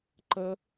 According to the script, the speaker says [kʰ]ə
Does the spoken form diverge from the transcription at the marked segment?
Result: yes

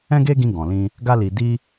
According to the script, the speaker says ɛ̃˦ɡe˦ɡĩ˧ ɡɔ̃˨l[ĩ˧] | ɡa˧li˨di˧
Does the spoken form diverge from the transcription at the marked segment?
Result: no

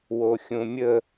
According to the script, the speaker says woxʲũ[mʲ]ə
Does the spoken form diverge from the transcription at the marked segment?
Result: no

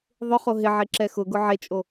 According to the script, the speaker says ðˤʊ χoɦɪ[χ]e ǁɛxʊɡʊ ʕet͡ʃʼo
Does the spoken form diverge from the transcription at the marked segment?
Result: yes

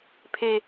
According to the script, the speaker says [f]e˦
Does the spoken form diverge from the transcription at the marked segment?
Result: yes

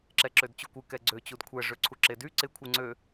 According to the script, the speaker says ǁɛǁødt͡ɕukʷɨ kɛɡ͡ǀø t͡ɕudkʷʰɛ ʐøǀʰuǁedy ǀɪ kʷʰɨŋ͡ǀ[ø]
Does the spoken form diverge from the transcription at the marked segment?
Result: no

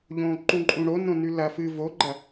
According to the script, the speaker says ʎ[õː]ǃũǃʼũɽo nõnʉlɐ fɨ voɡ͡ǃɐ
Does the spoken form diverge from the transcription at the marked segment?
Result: no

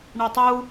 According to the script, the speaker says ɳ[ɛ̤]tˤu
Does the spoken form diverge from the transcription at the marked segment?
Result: yes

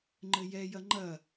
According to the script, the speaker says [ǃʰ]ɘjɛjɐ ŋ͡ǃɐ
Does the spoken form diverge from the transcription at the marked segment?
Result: yes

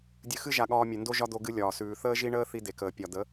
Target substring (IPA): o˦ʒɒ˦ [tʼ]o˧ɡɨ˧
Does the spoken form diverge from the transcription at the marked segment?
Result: yes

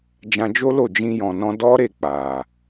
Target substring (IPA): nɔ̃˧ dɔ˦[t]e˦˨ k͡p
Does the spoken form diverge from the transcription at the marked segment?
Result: yes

